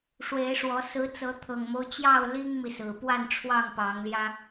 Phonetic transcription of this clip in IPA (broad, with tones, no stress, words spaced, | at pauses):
ʂwe˨˦ɪ̯ʂwɔ˨˦ sɹ̩˨˦ t͡sɤ˨˦t̪ʰɤ˨˩ŋmo˦ʊ̯ t͡ɕjɑ˥˨ʊ̯ li˦ŋmi˨ sɹ̩˨˩pwa˥˨nʈ͡ʂʰwɑ˥˨ŋ pɑ˨˦ŋljä˦